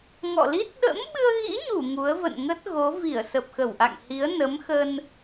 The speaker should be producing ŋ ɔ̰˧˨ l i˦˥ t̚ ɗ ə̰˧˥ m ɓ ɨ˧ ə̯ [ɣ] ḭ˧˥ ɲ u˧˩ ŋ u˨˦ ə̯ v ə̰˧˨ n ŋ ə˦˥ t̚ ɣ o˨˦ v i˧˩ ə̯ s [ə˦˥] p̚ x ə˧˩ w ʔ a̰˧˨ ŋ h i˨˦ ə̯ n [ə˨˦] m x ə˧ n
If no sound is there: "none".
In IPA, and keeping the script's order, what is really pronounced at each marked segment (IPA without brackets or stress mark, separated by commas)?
ɣ, ə˨˩, ə˨˦